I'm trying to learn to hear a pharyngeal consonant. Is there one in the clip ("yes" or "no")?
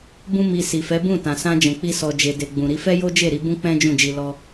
no